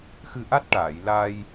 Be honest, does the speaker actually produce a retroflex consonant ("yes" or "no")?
yes